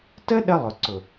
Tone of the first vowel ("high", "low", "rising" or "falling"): high